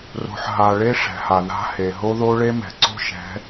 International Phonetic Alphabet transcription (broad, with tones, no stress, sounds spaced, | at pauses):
r o̤˨ ħ ɦ a˨ ɭ e˦ ʂ ɛ̤˨ h a˨ ð a̤˦ h e˨ ɦ o˦ ð o˦ ɭ e˦ m ɛ̤˨ ǀ o̤˦ ʃ ɛ̤˨˦